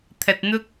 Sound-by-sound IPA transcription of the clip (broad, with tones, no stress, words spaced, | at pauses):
t̪ʰɐ˨t̚n̪ʊ˥k̚